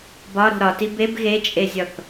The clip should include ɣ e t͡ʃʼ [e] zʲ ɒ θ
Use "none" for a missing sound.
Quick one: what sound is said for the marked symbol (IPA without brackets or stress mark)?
e